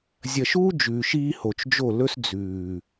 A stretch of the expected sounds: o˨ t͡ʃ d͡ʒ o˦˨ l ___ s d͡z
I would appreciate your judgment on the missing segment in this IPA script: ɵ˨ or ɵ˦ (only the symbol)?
ɵ˦